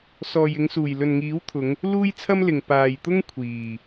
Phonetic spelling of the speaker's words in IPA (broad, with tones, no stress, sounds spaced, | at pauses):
s ɔː˨ j ɪ˨˧ ŋ s uː˨˩ j l ɵ˨ n ŋ iː˨˥ w t̪ʰ ʊ˨˧ ŋ | l uː˥ j t͡sʰ ɐ˥ m l ɪ˨ ŋ p aː˨ j t̪ ʊ˥ ŋ kʷʰ iː˨˩